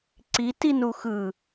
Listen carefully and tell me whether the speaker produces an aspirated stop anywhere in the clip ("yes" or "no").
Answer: no